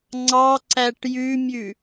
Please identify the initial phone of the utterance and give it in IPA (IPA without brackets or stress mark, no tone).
ŋ͡ǀ